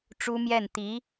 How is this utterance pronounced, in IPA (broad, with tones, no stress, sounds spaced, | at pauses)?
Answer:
ʈ͡ʂ u˥ m j ɛ˥˩ n t̪ i˧˥